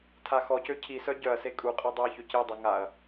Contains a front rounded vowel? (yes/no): yes